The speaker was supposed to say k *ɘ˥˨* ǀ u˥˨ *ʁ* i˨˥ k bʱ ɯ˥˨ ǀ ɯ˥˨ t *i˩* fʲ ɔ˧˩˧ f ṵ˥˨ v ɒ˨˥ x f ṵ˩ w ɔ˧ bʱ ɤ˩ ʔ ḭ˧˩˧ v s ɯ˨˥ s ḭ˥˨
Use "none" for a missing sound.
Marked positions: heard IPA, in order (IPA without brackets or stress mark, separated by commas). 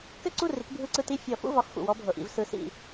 ɘ˥˨, r, i˥˨